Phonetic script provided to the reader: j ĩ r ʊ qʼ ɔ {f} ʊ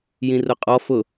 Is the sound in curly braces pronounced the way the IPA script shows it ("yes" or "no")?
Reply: yes